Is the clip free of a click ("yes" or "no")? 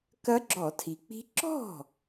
no